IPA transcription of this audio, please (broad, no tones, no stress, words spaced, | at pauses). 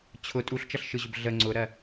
t͡ɕʰʊ tʼuɬt͡ʃʌɬʃɯʑʊb ɮə ŋ͡ǀʊɾɜ